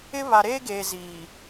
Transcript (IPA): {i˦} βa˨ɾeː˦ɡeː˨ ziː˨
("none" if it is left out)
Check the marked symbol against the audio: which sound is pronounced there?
ɪ˦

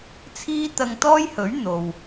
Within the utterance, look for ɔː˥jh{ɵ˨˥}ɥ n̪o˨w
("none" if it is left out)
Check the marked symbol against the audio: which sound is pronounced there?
ɵ˨˥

